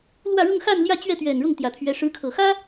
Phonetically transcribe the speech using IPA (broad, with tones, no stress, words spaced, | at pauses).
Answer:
lwä˥˧ ɻʊ˥˧ŋxa˥˧n ljä˥˧t͡ɕɥɛ˥˩t̪ɥɛ˨˩n ɻʊ˥˩ŋt̪jä˨˩t̪ʰɥɛ˧˥ ʂɻ̩˧˥kʰɤ˨˩xä˥